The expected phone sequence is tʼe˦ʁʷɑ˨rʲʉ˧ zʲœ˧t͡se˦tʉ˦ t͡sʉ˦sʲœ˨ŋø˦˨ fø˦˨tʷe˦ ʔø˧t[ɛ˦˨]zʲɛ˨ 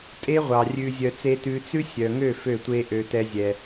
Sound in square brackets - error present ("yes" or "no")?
yes